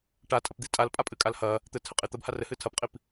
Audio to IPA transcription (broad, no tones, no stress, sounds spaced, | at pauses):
ʈ a tʼ ɐ p d̪ i tʼ a l pʼ a pʼ ɨ kʼ a l h ɐ | t̪ ɘ tʰ ɘ qʼ i t̪ ɐ b h a r ɘ h ɨ tʰ ɐ p qʼ i p